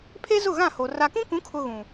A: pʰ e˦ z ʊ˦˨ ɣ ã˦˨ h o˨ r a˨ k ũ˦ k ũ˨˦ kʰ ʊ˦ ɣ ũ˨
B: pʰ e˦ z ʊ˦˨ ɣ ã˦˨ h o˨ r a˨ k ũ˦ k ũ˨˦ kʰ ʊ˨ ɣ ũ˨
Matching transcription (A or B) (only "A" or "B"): A